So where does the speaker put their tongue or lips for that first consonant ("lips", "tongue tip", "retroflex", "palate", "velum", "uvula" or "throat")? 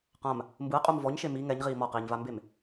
uvula